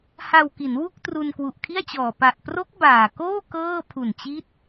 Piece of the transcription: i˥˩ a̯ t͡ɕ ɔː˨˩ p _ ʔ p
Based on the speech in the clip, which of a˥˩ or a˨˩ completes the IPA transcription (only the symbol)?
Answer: a˨˩